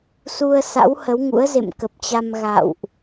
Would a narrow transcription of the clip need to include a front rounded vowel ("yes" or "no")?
no